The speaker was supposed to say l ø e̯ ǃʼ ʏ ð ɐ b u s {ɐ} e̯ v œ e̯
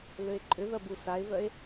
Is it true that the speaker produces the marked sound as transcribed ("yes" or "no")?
no